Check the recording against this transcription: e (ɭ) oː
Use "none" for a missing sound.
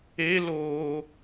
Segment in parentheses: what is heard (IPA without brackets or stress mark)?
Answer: l